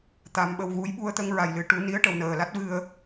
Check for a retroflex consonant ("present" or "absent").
present